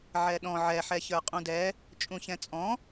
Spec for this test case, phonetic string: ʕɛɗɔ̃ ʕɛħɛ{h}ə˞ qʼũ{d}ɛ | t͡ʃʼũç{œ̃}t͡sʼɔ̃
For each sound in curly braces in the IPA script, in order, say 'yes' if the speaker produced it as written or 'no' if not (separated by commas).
no, yes, no